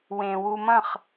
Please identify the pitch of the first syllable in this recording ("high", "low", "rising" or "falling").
low